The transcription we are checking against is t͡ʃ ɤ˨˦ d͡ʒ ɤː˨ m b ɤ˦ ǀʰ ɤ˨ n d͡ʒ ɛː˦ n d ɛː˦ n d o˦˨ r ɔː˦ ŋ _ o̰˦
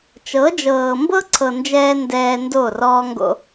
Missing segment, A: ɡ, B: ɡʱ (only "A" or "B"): A